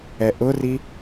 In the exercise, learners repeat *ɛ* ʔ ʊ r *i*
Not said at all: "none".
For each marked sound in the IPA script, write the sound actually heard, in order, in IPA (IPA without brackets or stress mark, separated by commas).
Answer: ɛ, i